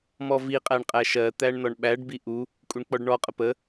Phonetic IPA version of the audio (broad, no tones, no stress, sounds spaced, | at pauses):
m ɔ v i qʼ æ ɳ qʼ æ ʃ ɜ t̪ æ ɳ n ɔ ɳ ɓ æ ɖ b i ʔ u | kʼ u ɳ k͡p ɔ ɖ ɳ ɔ qʼ ə p ə